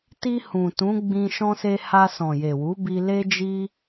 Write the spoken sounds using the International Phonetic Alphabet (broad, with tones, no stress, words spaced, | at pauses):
ti˧ hũ˨tũ˨˦ɡ͡bĩ˧ ʃɔ̃˧se˧ha˧ sɔ̃˨je˨wu˨˦bi˧ le˦d͡ʒi˦